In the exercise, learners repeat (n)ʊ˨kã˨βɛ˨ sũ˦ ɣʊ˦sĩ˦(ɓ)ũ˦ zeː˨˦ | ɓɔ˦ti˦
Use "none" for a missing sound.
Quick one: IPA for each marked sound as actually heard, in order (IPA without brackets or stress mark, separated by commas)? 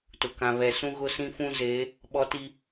t, f